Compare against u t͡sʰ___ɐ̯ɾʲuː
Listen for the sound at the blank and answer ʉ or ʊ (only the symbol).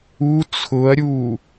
ʊ